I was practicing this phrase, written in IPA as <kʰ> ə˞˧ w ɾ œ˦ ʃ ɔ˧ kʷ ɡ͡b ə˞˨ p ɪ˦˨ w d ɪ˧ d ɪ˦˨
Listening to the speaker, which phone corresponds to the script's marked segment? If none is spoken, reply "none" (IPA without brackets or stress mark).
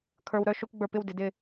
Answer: kʰ